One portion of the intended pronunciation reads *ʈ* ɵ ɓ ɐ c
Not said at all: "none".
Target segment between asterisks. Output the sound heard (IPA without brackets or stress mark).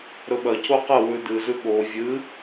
ɾ